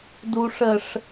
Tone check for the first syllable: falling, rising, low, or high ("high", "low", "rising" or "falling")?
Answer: low